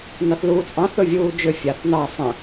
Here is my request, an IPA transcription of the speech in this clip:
nɑθluːt͡sʼɑ̃ θɵvʲuːd͡ʒʏ fʲaθnɑə̯ sˤə̃

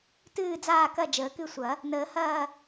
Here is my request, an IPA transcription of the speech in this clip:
tɨː˦˨d͡zaː˦˨kɐ˦˨ d͡ʒəː˨˩˦kɨ˦˨sʷɐ˨˩˦ | nəː˨˩˦hɐː˦˨

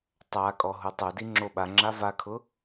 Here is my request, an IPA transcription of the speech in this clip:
tˤakʼɔ ɦutˤodi ŋ͡ǁoɓaŋ͡ǁa vakʰʊ

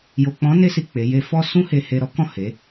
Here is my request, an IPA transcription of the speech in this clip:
jo˨k͡pɔ̃˨˦ne˧si˨ k͡pe˨˦je˦ fɔ˦sũ˦he˧he˧ ɾɔ˦kɔ̃˦˨ he˨˦

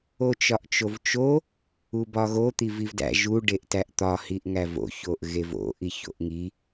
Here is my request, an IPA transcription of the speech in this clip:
ot͡ʃɒʔt͡ʃovt͡ʃo | ubɒɣo t̪ivivdæ̰ ʒu ɖeʔtæʔt̪ɒ hiʔŋævo̰ çoʔɣevo̰ ʔiço̰ʔŋi

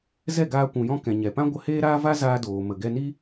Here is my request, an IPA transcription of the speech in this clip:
zɛ˦˨ɡaː˧ kʷũ˨jɔ̃˧ kɛ̃˨ɲɛ˨pã˦ ɡʷə˧heː˦ɾaː˦va˦ zaː˧ doː˨ mə˨ɡɛ˧ni˦

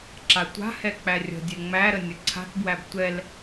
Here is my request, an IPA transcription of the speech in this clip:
ǁatʷa̤hɛ k͡pærʲə̤dʲɛ ŋ͡mæɾə nʲəǀʰa̤tbwæb tʷɛl

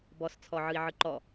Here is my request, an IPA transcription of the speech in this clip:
bɔst͡sʰɔʕɯi̯ʕɯ ǃɔ

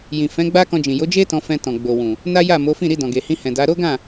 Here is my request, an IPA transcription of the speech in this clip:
jĩ˨fɛ̃˨˦ ɡ͡ba˦kɔ̃˧d͡ʒĩ˨ jo˨˦d͡ʒe˦ tɔ̃˧fɛ̃˧ tɔ̃˨ɡ͡bo˨wũ˨ | na˦ja˦˨ mo˨˦fĩ˦˨ ɾi˧dɔ̃˨ɡe˨hĩ˧ hɛ̃˨da˨˦ ɾo˦ɡã˦˨

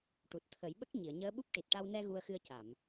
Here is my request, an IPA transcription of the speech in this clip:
ʈu˨˩t̚t̪ʰə˨˩˦jɓə˦˥k̚ ɲi˨˩˨ə̯ɲəː˧˥ɓu˦˥p̚ ʈi˨˩t̚ʈa˧wnɛ˧ ɣu˧ə̯xɨ˧ə̯ ca˨˩˨m

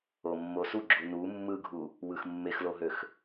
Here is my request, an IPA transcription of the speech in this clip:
omːosuɡ͡ǁu nu mːɯɡʱu | wɯxmːexloɦøx

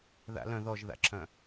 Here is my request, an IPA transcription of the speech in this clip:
ða̰lœ̃ ðɔʒða̰ǁʰœ̃

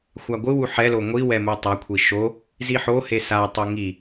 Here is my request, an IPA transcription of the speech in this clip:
xʷaɡʷɯwu ħɛlo ŋʷiwɛ mutˤakʷʰi ʃo | ziħohe satˤo ŋi

